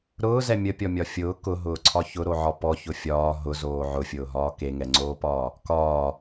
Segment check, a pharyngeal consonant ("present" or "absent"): present